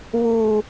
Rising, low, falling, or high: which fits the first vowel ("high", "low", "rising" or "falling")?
low